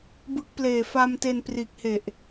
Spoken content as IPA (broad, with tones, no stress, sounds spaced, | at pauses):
b ɯ˦˥ k̚ p l eː˨˩ f a˧ m t e˧ n p r iː˨˩ k̚ h e˨˩ ʔ